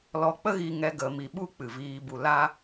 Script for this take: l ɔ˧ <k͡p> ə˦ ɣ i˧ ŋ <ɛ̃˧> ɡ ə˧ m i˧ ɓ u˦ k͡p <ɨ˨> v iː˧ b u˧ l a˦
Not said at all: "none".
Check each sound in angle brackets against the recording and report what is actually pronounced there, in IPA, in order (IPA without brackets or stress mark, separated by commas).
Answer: k͡p, ɛ˧, ɨ˨